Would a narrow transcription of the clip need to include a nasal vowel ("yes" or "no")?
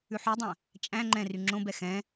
yes